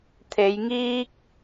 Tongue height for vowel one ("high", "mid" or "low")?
mid